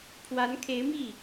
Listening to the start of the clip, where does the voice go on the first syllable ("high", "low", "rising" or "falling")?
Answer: rising